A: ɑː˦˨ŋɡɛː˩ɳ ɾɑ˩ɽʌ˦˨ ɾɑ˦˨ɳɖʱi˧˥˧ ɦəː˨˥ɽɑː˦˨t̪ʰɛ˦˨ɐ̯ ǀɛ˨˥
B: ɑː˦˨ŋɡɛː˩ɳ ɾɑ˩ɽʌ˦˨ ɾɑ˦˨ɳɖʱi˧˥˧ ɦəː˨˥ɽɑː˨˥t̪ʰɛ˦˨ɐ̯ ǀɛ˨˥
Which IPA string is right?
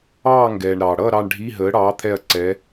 B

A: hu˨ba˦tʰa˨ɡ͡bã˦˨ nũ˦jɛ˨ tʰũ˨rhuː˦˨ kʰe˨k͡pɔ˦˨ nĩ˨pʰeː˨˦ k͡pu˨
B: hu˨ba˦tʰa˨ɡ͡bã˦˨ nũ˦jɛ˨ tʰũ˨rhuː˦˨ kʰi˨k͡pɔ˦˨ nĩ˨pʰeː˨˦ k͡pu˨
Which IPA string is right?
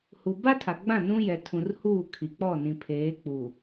B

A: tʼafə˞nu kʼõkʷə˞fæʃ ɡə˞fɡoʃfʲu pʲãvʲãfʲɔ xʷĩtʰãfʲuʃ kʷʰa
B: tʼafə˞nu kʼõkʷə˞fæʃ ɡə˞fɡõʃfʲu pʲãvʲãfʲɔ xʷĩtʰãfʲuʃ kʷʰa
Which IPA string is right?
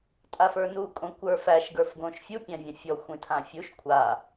B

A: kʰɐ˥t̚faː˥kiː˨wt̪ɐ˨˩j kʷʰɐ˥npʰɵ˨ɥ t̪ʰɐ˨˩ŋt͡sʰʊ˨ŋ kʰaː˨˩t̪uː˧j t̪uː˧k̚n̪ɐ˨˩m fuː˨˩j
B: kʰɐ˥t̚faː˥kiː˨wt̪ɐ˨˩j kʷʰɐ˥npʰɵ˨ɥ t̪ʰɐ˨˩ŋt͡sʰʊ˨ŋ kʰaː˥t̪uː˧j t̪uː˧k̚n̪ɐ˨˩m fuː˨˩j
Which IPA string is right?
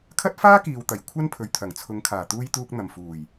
A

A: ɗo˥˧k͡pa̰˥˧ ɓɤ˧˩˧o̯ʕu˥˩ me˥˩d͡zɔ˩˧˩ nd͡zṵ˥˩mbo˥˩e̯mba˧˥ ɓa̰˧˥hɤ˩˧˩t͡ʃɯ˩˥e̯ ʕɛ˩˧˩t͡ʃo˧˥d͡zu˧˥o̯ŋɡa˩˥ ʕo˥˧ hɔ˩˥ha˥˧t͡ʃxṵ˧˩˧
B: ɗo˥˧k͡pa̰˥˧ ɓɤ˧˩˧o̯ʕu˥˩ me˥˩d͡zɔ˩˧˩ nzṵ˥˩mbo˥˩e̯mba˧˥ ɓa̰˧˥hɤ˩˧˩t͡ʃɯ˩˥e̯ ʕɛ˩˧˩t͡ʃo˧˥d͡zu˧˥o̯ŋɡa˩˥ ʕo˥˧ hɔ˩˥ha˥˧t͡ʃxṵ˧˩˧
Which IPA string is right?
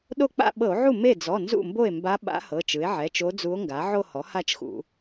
B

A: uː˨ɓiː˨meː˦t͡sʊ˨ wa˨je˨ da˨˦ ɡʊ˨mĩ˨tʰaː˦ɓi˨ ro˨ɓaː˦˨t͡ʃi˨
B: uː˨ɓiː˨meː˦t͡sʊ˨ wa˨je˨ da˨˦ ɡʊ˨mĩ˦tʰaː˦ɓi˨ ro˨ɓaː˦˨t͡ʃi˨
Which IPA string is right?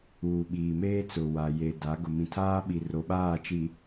A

